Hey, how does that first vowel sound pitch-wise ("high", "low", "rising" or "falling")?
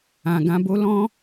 low